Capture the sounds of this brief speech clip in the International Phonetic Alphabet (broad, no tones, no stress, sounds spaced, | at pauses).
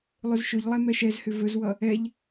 lˠ ɵ z ʃ ɵ ʎ lˠ ɛ m ɛ ʃ ɛ z h ʏ v ɵ z w ʌ | ɛ ʎ